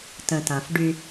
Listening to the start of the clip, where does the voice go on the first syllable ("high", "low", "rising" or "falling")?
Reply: low